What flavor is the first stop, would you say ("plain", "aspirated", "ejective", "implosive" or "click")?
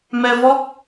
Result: plain